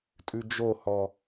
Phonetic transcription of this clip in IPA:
tʼ ʉ d͡ʒ o h ɔ

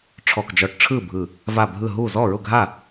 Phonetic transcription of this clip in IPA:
ʈ͡ʂʰ ɔ˧˩ k d͡ʒ ɔ˧˩ ʈ ʈ͡ʂʰ ɯ˥˩ bʱ ɯ˧˩ | v a˧˩ bʱ ɯ˧˩ ɦ u˥˩ z ɔ˥˩ ɹ ʊ˥˩ ɡʱ a˥˩

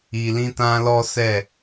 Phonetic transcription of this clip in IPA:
i˧ l ĩ˦ t ã˦ l ɔ˦ s ɛ˦˨

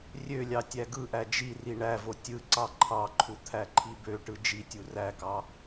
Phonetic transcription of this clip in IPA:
rʲ ø lʲ ɑ tʲ æ ɡ ɯ ʔ æ d͡ʒ i r i ɳ æ v o tʲ ɯ ǀ ɑ ǃʰ ɑ ǃʰ u t̪ʰ æ ǃʰ i b ø ʈ ɯ d͡ʒ i tʲ u r æ k ɑ

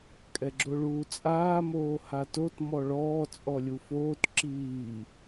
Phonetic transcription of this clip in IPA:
kʼ ɛ ɡ͡ǁ o ɭ uː t͡sʼ aː m oː h a t o t m ɔ ɭ ɔː t͡sʼ ɔ lʲ u f oː t ǁ iː

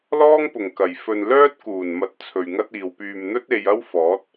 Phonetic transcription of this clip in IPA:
l ɔː˥ ŋ p ʊ˨˩ ŋ k ɐ˨˩ j f ɵ˨ n l œː˥ t̚ k uː˨˩ n m ɐ˨ t̚ t͡sʰ ɵ˨ ɥ ŋ ɐ˥ t̚ iː˨ w p yː˨ m n̪ ɵ˥ t̚ e˥ j ɐ˥ w f ɔː˨˥ t̚

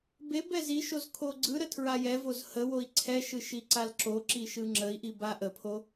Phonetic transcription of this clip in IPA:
b e b ɛ z i ʃ o z kʰ o ɡ͡ǀ ɯ ɾ ə tʰ ɹ a j ɛ v o z h ə w o i̯ ǀʰ ɛ ʃ ɯ ʃ i ǀ a l ǁ o ǁ i ʃ ɯ ŋ͡ǁ ə i̯ ʔ i b a ʔ ə pʰ o

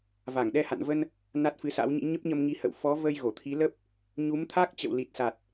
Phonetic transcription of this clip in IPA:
v a˧˩ ŋ ɗ ɛ˧ h a̰˧˨ n v ə˧ n | n a˦˥ t̚ f ɨ˨˦ s a̰˧˥ w ɲ ḭ˧˥ ɲ ə˦˥ p̚ ɲ ə˧ m ŋ i˨˦ h ə̰˧˨ w f ɔ˨˦ v ə˧ j ɣ o˧˩ t̪ʰ i˨˦ l ə˦˥ p̚ | ɲ u˨˦ m t̪ʰ a˦˥ k̚ t͡ɕ ə̰˧˨ w l i˨˩ t̚ s a˨˩ t̚

